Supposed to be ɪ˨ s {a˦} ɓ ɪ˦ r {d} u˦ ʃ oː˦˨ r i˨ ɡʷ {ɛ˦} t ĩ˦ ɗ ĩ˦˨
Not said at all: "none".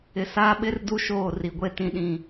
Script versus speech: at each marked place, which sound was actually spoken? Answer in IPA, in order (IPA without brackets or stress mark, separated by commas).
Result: aː˦, d, e˦